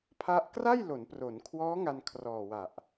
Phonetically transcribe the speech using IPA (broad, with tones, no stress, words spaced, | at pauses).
pʰa˥˩ʔ kra˥˩jlo˩˦npro˩˦nkʰwɔː˦˥ ŋa˧nkʰrɔː˨˩wa˨˩ʔ